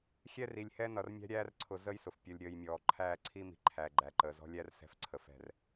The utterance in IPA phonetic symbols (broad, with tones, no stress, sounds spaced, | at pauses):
xʲ ɛ˦ r i˨ lʲ h ɛ˦ n ʌ˨ r mʲ æ̤˦ ɾʲ æː˦ r ǀʰ ʊ˨ z əː˦ j s ʊ˨ f pʲ ʌ˨ lʲ ɾʲ əː˨ j mʲ ɔː˨ ǃʰ æ˦˨ ǀʰ i˦ m i̤˨ ǃʰ æ˨ ɡ͡ǃ æ˨ ǃ əː˨ z ɔ̤˦ lʲ æ˦ r s ɛ̤˦ f ǀʰ ə˨ f ɛ̤˦˨ r